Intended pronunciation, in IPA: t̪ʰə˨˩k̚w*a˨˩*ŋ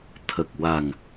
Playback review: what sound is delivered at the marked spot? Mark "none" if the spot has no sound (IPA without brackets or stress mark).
a˨˩